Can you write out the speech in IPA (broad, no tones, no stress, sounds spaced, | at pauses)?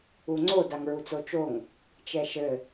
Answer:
u ŋ͡ǀ o d a ŋ ɹ u t͡s o t͡ʃ o ŋ | t͡ʃ ɛ ʃ ɘ